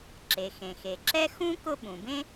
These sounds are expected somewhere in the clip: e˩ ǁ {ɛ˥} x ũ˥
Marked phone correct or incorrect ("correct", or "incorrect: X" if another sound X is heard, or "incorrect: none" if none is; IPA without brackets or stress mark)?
correct